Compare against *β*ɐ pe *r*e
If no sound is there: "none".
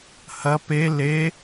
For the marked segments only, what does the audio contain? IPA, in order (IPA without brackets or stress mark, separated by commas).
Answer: h, l